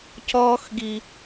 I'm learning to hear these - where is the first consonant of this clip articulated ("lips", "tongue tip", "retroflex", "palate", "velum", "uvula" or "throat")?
palate